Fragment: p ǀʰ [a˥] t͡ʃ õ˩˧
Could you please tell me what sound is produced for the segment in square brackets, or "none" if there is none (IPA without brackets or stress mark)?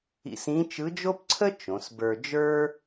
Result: ə˥